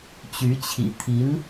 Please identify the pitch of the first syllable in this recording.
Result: rising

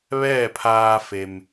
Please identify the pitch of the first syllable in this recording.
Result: falling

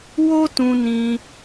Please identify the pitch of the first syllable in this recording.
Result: high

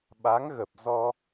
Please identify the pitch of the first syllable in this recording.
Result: rising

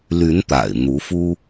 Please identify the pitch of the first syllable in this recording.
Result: rising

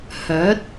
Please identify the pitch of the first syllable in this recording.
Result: rising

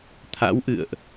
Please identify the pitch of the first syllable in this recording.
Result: rising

